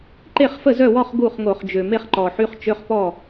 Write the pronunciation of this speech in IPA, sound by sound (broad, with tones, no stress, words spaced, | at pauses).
ǃe˥˩χfə˥˩zœ˥˩wɔ˥˧χ ɡu˥˩χŋo˧˩˧χd͡ʒø˨˩ me˥˧χǃɔ˨˩ħy˧˥˧χ t͡ʃø˧˥˧χpɔ˥˩